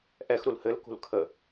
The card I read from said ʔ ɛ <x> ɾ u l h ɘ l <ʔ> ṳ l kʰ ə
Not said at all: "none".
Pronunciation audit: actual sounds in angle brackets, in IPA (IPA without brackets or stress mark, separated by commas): x, k